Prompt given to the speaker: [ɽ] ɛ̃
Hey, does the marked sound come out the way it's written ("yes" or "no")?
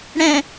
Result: yes